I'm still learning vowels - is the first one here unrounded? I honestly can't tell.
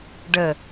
yes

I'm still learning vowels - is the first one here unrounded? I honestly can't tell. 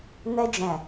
yes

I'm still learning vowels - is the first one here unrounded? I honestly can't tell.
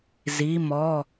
yes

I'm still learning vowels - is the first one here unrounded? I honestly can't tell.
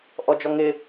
no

